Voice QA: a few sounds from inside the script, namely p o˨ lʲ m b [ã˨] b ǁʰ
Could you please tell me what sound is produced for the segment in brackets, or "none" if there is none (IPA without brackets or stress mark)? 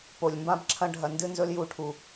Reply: ã˦